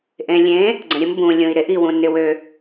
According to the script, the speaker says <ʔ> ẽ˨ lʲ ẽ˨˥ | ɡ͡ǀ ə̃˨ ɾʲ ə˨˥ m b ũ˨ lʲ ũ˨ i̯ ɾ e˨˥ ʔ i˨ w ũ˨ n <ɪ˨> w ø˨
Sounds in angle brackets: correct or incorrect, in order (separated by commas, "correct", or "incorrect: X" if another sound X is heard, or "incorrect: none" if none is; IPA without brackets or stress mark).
correct, correct